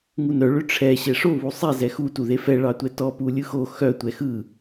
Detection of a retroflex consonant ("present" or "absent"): present